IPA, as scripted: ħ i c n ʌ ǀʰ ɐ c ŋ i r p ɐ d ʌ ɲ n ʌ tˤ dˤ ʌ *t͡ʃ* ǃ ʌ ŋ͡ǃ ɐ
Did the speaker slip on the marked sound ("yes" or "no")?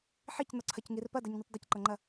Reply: yes